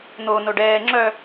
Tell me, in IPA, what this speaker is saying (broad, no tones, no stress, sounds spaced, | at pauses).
n̪ o n o ɖ ɛː ŋ͡ǁ œ